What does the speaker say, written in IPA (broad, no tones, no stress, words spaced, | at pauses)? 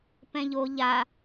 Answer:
pɛ̃ʎo ʎa